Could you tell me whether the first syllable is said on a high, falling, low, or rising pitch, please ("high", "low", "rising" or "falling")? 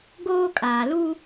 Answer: high